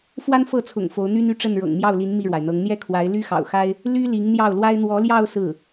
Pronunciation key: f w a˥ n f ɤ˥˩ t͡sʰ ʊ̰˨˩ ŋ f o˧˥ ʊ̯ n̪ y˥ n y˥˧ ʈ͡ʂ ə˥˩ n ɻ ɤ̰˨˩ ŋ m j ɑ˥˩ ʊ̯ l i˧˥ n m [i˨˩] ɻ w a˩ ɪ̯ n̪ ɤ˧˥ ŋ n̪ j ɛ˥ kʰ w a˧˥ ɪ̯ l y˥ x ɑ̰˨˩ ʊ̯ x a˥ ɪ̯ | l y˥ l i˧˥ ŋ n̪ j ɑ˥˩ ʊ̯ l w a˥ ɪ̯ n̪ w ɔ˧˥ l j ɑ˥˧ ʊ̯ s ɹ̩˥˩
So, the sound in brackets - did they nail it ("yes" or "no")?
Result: no